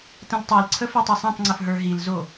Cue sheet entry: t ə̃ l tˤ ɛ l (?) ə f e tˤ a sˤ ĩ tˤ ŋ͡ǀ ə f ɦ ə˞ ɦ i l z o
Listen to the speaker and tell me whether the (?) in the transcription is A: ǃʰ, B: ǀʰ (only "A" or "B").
B